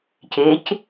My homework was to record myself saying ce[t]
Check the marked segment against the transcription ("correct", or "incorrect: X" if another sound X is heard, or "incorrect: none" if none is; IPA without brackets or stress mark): incorrect: c